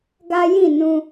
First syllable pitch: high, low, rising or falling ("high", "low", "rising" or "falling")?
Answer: high